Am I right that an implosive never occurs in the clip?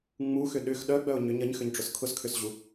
no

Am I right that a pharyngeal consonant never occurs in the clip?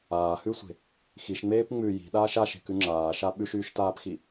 yes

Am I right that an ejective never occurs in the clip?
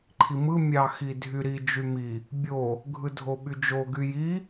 yes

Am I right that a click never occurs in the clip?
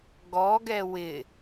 yes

